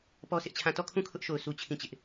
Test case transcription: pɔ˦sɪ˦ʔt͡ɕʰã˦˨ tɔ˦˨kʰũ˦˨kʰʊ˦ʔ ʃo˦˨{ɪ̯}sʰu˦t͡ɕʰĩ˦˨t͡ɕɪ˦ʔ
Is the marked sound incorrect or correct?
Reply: incorrect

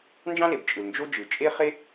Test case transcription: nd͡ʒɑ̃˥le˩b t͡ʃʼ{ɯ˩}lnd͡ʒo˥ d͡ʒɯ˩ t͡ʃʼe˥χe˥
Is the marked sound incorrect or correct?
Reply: correct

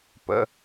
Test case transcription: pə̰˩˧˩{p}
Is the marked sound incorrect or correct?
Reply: incorrect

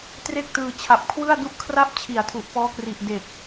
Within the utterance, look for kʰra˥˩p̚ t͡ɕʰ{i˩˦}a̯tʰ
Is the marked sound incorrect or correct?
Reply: correct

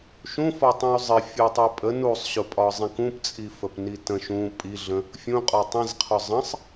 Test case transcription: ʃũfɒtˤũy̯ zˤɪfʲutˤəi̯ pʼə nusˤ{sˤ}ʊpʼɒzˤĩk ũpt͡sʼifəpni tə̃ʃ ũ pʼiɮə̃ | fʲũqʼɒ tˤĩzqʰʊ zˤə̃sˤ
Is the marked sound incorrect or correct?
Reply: incorrect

